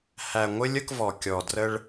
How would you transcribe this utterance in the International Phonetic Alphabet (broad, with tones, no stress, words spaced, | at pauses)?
hæ˨ŋʷɪ˦lʲ ə˦kvɔ˨ kʲɔ˨drə˦ɭ